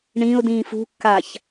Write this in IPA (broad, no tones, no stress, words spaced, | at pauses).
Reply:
ɳĩʊ̯dĩːf ṳkːaç